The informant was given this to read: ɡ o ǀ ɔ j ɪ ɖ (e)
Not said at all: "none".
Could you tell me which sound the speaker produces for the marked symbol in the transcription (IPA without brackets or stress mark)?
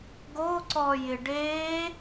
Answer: e